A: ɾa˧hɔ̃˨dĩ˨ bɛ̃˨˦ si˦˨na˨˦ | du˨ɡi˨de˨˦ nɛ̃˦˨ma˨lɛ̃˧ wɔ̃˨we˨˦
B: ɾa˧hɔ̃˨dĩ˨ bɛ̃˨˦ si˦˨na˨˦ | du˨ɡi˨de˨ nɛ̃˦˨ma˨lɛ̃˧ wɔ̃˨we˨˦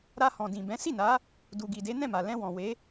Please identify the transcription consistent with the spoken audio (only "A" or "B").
A